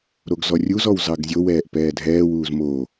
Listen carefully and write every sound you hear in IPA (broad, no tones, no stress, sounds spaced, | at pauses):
ɾ o ɡ z ɔ rʲ u z ɔ w z ɑ ɡ zʲ o w ɛː ʔ p ɛː dʱ ɛː w uː z m o